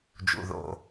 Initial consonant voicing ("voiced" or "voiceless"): voiced